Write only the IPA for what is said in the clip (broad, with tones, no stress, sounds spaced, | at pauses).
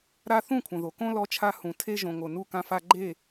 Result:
ɾ a˦ θ ũ˦˨ kʷʰ ɐ̃˨ ð o˨ k õ˦ l ɔ˦ t͡ʃʰ a˦ h ũ˨ tʰ e˦ ʒ õ˨ ŋ o˨ n u˦˨ k ã˦ f a˦ ɡ͡ǃ e˦˨